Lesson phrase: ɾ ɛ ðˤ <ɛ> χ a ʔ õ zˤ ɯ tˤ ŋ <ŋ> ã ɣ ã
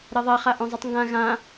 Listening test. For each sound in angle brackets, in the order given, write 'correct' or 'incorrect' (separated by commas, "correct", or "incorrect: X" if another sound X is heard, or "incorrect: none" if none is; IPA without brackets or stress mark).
correct, incorrect: ɡ